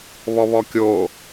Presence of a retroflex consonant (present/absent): absent